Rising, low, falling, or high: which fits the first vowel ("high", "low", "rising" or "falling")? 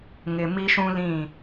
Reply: low